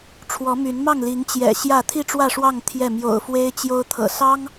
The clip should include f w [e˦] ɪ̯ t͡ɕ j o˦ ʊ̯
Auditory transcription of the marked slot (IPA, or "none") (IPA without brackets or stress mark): e˦